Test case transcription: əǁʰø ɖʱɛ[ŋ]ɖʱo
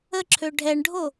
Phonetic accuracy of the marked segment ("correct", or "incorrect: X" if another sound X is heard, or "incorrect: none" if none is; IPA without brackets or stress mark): incorrect: ɳ